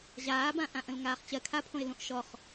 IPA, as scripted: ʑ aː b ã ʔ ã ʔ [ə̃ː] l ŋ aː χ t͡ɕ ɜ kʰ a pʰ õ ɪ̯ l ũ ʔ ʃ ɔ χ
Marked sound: incorrect: ə̃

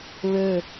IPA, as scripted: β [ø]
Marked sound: correct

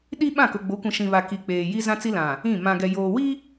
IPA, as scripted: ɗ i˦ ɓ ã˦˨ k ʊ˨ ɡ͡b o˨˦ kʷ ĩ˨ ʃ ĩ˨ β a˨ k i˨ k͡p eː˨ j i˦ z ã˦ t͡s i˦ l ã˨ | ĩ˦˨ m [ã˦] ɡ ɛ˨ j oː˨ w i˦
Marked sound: incorrect: ã˨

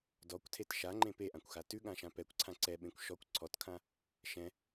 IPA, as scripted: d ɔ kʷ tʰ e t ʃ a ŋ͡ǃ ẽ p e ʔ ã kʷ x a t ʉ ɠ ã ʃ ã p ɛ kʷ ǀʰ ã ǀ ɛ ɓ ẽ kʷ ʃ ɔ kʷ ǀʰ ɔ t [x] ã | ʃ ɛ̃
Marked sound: incorrect: kʰ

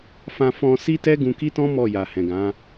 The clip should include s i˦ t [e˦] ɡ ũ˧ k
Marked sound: incorrect: ɛ˦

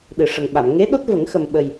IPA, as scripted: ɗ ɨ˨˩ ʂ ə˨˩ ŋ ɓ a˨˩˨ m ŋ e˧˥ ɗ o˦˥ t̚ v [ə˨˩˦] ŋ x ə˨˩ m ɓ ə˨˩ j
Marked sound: correct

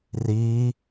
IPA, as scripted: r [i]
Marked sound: correct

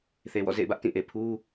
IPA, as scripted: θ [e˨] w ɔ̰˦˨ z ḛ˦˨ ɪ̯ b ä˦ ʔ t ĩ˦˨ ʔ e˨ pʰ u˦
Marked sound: correct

